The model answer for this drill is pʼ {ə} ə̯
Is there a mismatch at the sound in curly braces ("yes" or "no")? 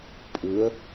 yes